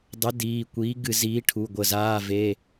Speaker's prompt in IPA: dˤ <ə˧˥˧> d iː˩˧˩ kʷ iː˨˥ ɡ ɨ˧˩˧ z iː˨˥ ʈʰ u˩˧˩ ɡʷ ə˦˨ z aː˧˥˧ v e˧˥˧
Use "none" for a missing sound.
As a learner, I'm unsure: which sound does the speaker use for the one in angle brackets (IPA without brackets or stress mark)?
ə˨˥